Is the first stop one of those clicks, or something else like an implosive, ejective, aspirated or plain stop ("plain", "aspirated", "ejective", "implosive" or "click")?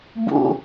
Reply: plain